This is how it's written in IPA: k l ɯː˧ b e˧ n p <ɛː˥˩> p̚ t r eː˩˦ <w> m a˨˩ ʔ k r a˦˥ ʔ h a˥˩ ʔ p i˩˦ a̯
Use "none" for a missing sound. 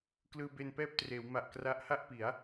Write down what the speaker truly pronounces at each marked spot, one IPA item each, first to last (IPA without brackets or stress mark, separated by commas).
ɛː˥˩, w